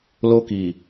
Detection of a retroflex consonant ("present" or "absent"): absent